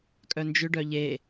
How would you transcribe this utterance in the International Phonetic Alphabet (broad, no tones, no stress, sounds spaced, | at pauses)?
kʼ œ n d͡ʒ ʏ ɖ œ ʎ e